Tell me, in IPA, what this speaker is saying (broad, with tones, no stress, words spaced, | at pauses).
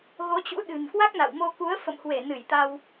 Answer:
ɣo˨˦t͡ɕṵ˧˥ɗɨ̤˨˩n kwa˦˥k̚na̰˧˨wmo˧ ku˨˦ə̯fə̰˧˨mhwe˧˩ nɨ˧˩jt̪a˧w